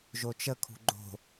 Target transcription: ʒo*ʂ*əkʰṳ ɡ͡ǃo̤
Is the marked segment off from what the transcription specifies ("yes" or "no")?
yes